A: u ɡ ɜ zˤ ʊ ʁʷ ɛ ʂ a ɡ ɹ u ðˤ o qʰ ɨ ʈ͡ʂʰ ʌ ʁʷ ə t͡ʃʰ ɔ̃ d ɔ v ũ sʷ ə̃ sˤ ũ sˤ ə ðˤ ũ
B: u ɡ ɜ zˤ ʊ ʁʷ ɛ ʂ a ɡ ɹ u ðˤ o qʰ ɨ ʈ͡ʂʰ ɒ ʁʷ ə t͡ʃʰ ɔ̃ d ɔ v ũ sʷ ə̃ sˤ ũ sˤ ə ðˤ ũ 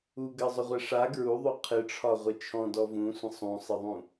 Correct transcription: B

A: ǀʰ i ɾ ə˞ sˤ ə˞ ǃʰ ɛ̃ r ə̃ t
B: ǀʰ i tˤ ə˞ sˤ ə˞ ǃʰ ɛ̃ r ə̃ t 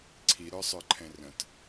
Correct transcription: A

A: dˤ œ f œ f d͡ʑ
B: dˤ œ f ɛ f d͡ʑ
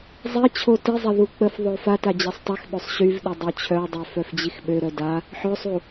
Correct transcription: A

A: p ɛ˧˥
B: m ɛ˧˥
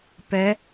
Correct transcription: A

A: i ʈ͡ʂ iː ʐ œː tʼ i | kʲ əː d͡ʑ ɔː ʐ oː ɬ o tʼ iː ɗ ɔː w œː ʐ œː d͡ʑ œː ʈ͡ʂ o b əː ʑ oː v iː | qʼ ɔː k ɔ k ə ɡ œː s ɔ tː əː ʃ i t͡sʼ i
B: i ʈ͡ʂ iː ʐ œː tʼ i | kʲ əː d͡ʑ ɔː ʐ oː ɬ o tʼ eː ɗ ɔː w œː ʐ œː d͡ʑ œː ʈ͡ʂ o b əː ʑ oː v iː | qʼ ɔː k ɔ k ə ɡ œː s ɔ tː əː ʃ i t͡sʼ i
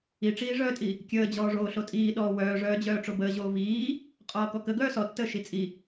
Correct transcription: A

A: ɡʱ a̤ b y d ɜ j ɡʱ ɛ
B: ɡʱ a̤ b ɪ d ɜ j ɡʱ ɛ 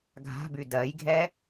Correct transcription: A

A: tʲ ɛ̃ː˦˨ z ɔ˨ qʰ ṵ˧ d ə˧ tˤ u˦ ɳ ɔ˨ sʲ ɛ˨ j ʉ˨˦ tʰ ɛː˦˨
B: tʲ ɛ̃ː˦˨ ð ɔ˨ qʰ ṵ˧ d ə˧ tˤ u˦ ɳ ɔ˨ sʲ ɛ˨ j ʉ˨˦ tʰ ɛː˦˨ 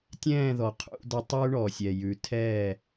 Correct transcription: B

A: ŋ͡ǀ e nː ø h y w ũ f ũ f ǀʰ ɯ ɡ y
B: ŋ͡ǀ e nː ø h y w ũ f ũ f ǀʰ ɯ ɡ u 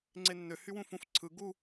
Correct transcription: B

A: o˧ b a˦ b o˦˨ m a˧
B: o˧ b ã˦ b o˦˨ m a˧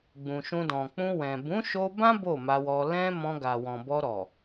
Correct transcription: B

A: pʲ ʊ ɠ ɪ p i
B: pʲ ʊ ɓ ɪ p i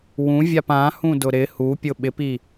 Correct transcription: B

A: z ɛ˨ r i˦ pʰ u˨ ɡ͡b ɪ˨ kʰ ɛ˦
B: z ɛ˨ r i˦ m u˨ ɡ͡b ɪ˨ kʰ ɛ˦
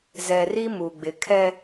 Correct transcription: B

